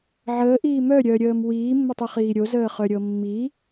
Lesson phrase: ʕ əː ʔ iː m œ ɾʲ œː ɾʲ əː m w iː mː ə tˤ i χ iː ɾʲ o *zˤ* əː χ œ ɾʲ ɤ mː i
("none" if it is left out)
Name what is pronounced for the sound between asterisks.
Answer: z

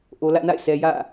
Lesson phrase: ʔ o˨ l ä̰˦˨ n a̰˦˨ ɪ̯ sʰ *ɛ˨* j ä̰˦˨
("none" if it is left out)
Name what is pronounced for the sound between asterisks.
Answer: ɛ˨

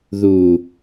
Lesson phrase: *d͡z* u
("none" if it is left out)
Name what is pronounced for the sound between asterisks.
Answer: ð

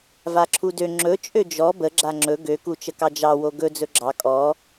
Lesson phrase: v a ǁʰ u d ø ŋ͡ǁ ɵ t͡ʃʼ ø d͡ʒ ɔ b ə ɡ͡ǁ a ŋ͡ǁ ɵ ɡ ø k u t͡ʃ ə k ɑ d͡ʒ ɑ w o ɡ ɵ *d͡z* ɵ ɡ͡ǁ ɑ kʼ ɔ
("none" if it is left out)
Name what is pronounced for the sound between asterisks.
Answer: d͡z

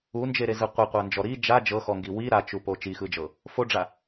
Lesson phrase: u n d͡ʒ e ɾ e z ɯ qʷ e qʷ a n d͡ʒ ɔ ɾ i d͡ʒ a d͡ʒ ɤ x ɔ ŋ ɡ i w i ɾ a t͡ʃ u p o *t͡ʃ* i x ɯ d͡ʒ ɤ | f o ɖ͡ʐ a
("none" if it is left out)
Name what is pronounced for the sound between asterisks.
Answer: t͡ʃ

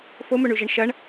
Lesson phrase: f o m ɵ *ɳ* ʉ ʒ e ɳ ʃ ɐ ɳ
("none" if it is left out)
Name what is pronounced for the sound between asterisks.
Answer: ɳ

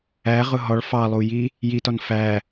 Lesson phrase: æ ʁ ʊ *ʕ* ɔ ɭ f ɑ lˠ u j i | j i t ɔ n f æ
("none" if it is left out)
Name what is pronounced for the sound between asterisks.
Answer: ɦ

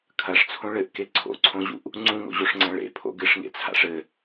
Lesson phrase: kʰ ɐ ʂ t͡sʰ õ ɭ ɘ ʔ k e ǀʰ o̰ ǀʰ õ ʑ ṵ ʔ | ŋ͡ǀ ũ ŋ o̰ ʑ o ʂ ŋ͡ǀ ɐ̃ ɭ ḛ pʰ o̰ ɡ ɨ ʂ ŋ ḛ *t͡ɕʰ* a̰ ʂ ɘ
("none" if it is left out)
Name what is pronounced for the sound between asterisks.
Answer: t͡sʰ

